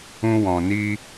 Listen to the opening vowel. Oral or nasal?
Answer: nasal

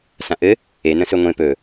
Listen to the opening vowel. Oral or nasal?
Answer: nasal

